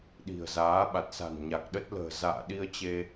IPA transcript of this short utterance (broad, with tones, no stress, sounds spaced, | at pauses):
ɗ i̤˨˩ ə̯ z aː˨˦ ɓ a˨˩ t̚ s a̤˨˩ n ɲ a˨˩ k̚ ɗ ə˦˥ t̚ l ə̤ː˨˩ z a̰ː˧˨ ɗ i˧ ə̯ t͡ɕ e˧